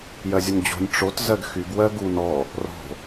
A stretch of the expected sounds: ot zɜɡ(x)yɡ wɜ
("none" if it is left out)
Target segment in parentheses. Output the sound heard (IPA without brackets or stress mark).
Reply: x